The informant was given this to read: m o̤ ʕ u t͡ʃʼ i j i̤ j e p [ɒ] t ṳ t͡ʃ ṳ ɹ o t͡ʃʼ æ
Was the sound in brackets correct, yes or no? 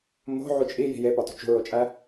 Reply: yes